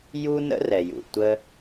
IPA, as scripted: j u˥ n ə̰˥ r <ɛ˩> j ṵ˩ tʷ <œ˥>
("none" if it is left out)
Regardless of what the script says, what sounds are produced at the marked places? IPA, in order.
ɛ˩, ə˥

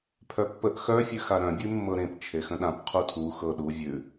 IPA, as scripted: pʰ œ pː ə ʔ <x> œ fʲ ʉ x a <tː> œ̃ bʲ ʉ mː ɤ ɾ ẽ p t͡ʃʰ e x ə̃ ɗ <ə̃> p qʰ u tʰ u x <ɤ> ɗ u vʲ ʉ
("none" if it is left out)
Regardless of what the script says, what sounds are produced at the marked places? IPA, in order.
x, ɾ, ã, ɤ

